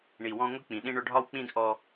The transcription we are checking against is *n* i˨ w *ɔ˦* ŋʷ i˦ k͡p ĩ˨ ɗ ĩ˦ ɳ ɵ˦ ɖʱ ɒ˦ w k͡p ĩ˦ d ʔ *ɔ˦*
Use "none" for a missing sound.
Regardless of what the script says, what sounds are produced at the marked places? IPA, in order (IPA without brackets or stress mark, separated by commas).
ɳ, ɔ̃˦, ɔ˦